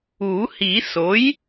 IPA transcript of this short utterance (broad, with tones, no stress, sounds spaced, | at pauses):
u˨˩˦ h i˨˩˦ s o˩˥ j